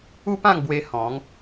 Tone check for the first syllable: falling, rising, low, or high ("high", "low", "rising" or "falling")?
high